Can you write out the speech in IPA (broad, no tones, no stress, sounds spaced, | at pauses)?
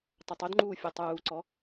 tˤ ɐ tˤ o d ŋ͡ǃ uː fʲ ɯ tˤ uː ǀ ɔ